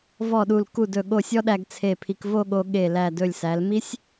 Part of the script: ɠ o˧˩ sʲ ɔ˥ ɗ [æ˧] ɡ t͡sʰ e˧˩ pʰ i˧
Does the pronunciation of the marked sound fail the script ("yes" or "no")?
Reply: no